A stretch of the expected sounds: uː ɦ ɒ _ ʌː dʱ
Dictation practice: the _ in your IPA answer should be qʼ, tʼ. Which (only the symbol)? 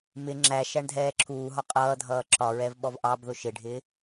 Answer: qʼ